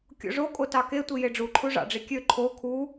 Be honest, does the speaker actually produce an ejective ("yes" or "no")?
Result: yes